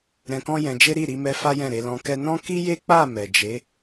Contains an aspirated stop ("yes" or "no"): no